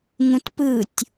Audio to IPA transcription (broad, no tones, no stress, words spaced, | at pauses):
ŋũtpɯtʲ